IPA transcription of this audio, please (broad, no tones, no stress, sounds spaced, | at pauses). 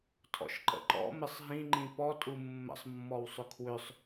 tʰ ɔ̰ ʃ ǃ ə̰ ǃ ɔ̰ m ɪ sˤ ɦ ĩ ŋ͡ǃ ĩ p ɔ tʼ u mː ə̰ sˤ mː ɔ w sˤ ʏ kʰ w ʏ sˤ